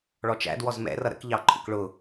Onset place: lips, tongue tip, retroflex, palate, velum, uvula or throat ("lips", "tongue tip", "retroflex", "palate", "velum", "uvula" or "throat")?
retroflex